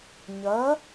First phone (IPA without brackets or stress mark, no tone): ɲ